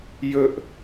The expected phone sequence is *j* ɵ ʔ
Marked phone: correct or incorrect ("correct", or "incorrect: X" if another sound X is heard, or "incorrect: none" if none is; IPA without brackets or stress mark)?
correct